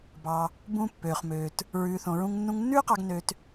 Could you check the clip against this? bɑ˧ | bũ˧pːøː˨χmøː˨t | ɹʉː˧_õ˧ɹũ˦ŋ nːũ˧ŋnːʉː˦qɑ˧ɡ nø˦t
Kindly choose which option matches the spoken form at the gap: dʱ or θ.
θ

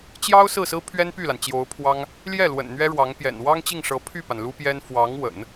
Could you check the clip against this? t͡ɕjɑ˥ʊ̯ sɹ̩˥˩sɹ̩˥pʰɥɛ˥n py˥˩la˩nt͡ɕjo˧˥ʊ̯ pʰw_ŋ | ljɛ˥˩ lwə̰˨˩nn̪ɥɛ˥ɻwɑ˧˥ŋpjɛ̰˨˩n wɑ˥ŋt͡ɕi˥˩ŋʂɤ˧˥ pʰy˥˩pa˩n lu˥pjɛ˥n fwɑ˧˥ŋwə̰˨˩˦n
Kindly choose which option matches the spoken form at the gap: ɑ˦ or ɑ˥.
ɑ˥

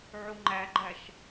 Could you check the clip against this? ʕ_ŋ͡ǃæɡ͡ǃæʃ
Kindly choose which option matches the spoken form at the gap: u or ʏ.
u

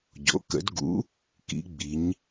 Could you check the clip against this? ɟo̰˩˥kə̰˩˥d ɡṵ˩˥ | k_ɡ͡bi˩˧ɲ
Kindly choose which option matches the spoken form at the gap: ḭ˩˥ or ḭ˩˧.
ḭ˩˧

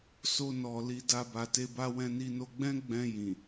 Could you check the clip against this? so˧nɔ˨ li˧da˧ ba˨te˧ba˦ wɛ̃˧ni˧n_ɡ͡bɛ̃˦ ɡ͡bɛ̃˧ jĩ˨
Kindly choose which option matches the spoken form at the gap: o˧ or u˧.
o˧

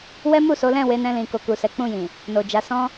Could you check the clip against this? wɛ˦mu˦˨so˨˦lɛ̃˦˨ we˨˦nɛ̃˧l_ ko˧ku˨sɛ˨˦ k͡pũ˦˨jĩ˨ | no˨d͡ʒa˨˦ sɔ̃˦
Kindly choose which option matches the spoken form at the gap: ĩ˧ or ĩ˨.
ĩ˨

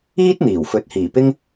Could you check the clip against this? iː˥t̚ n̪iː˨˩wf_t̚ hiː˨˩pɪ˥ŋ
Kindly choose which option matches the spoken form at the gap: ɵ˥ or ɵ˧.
ɵ˧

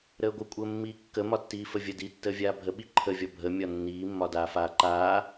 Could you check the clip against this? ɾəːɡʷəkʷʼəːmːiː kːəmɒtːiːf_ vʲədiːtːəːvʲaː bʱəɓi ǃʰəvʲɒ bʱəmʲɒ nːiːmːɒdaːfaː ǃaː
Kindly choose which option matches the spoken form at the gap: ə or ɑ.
ə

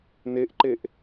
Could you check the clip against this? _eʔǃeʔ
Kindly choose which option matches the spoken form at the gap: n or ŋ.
n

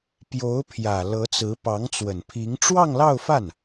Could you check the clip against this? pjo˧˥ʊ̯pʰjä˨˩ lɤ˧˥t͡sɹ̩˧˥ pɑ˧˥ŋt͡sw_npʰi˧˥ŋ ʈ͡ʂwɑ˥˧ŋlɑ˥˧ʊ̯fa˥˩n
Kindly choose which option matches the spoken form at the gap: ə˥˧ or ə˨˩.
ə˨˩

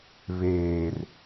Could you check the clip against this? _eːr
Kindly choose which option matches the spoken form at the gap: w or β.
β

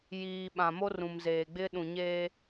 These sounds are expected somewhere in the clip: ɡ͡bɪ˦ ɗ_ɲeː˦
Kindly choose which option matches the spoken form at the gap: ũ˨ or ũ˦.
ũ˨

